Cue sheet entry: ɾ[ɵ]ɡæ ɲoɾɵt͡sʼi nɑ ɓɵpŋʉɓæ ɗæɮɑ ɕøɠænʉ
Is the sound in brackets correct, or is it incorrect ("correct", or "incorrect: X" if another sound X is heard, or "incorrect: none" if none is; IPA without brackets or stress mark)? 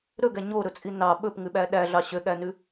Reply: correct